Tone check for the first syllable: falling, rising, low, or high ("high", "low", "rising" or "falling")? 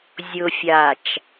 low